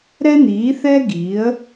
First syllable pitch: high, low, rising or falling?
high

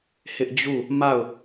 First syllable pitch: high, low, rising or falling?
high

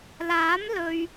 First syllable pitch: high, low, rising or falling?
rising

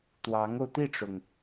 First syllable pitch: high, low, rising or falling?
rising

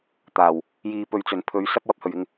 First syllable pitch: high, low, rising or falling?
low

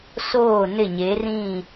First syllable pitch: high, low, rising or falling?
falling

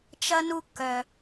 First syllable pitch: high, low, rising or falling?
high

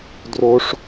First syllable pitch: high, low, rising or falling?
high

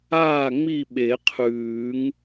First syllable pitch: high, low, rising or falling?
falling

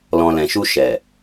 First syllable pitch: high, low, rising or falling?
low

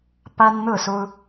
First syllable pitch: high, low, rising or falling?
high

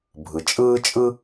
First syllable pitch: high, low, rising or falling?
low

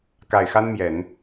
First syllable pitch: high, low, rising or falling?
low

